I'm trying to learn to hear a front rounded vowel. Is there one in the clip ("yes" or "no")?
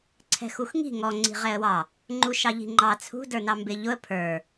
no